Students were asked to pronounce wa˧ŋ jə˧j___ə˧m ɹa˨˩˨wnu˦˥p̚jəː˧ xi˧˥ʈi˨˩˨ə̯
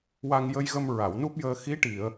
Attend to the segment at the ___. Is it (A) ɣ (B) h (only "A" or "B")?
A